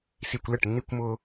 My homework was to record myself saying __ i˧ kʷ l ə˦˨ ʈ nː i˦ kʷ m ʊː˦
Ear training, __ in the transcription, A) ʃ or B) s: B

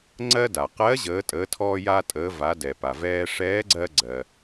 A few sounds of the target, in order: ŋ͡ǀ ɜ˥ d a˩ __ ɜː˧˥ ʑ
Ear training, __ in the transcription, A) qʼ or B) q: B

